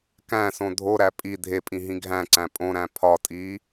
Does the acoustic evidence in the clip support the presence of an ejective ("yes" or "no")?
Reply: yes